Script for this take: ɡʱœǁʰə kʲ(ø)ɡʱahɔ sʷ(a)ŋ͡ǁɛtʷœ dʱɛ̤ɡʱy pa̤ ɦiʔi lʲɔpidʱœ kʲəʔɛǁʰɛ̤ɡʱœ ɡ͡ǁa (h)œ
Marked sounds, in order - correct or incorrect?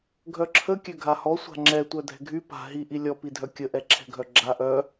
correct, incorrect, incorrect

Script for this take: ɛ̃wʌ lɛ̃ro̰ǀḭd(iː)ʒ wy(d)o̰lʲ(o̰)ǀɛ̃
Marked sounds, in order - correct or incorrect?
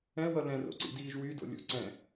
correct, correct, correct

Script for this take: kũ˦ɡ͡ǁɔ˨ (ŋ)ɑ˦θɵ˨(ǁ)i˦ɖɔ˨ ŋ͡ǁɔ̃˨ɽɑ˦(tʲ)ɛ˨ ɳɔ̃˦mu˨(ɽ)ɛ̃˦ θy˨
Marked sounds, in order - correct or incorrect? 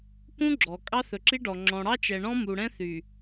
incorrect, correct, incorrect, correct

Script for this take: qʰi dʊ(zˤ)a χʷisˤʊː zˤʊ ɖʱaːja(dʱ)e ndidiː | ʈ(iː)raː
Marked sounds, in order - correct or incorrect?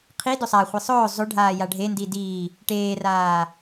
incorrect, incorrect, incorrect

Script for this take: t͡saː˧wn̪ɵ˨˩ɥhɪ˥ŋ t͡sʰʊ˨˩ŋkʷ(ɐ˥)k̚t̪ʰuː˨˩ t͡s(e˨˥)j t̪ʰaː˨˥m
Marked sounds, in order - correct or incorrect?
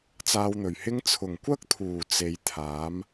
correct, incorrect

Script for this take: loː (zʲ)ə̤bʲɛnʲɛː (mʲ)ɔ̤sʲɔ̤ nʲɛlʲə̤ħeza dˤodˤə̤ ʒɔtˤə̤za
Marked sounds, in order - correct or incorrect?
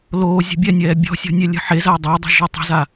correct, incorrect

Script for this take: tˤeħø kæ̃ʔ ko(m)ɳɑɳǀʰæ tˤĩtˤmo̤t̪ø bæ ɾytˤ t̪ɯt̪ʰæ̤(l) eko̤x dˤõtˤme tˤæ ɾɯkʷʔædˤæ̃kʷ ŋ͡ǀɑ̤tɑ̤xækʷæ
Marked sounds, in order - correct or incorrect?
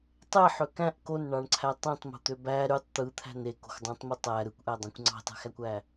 incorrect, incorrect

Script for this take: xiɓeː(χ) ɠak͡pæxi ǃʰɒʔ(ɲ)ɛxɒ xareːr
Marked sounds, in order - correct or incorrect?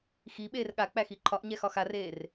incorrect, correct

